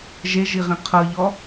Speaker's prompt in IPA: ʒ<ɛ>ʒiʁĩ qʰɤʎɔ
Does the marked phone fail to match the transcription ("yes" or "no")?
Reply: yes